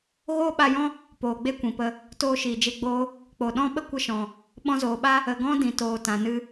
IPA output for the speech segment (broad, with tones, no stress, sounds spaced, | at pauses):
ɣ oː˦ ɓ a˧ j ɔ̃˦ | p oː˨ ɡ͡b e˦ kʷ ĩ˨ p ə˧ | t oː˧ ʃ iː˨ d͡ʒ e˧ ɡ͡b oː˦ | k͡p o˨ ɗ ɔ̃˦ ɓ ə˦ kʷ ə˧ ʃ ɔ̃˨ | ɓ ɔ̃˧ z oː˨ ɓ a˦ | ə˨ ɡ ɔ̃˦ d ĩ˨ t oː˨ t ã˨ n ɨ˧